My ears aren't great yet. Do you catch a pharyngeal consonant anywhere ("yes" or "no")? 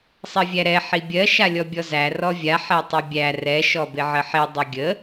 yes